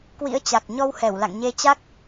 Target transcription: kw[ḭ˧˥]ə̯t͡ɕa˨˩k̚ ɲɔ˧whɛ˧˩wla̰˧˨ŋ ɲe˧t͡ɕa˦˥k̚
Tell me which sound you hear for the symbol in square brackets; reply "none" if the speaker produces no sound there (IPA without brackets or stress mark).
ḭ˧˥